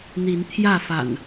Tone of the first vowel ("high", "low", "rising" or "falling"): rising